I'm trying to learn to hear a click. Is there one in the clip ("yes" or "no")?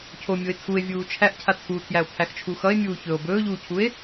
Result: no